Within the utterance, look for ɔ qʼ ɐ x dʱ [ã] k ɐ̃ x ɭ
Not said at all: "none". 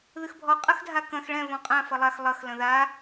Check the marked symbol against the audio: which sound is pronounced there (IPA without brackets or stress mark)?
a